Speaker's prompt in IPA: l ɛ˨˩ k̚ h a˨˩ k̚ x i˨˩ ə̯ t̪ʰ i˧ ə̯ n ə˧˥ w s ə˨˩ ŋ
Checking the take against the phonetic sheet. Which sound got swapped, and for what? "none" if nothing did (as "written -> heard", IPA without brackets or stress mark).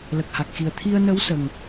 ɛ˨˩ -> ə˨˩